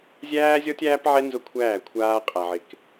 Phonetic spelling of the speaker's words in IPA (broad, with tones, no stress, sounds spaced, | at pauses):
zʲ æː˦ zʲ ɔ˦ tʲ æː˦ p ʕ ɛ˦ n z ʊ˦ kʷʰ æː˦˨ kʷʰ aː˦ qʼ a˨ ʕ ɪ˨ k